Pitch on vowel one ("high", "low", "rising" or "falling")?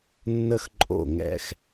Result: high